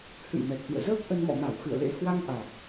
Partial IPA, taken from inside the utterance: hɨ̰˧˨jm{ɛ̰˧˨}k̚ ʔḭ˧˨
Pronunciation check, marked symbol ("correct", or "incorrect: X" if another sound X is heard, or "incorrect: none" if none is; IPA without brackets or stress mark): incorrect: ɛ˨˩